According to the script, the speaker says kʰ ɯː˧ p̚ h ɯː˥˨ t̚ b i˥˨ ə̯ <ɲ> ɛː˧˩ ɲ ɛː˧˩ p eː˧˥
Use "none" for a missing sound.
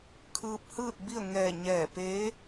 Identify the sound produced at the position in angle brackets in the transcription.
ŋ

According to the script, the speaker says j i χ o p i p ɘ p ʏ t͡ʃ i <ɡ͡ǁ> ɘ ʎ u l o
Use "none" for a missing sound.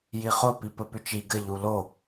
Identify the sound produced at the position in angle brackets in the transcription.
ɡ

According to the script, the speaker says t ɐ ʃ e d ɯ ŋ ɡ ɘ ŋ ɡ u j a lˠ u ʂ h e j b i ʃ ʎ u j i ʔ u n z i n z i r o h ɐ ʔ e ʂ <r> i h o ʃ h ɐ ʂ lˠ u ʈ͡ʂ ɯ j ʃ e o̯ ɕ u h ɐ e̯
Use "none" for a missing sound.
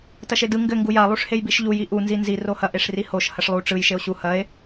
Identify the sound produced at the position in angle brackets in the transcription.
r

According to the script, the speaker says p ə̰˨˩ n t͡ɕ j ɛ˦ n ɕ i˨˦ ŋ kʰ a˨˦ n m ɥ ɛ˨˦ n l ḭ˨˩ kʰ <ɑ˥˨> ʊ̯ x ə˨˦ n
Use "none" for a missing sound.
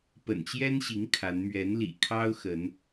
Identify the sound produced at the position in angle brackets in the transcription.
ɑ˦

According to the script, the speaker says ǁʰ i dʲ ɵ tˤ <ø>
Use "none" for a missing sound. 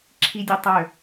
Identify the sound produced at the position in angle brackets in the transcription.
ø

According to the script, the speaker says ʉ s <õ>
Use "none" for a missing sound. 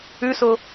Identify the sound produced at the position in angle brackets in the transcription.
o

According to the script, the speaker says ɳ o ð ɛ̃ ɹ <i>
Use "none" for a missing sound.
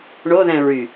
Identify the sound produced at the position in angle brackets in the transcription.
y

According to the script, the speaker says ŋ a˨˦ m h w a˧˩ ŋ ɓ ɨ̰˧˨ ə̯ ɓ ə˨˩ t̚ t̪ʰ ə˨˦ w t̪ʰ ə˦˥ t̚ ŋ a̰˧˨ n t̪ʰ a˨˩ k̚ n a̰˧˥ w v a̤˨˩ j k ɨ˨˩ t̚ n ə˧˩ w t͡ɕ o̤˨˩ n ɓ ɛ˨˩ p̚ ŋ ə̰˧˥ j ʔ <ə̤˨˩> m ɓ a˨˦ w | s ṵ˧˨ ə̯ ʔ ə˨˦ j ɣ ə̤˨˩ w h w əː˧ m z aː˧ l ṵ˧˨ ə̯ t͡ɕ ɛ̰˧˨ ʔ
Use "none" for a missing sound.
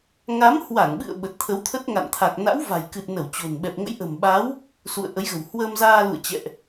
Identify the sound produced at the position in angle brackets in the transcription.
ə̤˨˩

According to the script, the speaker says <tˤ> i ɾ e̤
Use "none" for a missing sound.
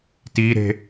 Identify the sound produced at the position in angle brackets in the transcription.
t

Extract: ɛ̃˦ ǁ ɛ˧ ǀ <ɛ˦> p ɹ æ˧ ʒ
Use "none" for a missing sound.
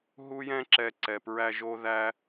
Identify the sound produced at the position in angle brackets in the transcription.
ɛ˨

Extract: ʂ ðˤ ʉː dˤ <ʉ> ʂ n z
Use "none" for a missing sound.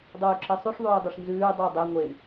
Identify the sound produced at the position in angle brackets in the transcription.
ʉ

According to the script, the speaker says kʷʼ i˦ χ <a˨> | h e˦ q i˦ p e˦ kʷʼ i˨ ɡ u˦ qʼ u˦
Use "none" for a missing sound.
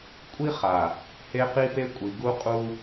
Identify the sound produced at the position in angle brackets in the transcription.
a˨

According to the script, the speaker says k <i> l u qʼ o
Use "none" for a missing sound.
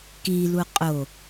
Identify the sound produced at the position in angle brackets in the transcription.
i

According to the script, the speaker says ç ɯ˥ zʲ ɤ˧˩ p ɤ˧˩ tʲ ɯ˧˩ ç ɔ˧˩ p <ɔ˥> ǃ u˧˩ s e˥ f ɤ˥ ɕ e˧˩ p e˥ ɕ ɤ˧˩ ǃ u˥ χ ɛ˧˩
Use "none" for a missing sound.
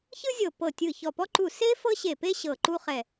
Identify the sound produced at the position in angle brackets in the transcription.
ɔ˥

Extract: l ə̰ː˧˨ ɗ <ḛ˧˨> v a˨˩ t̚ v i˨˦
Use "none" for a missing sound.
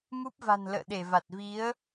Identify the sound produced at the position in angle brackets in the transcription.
e˧˩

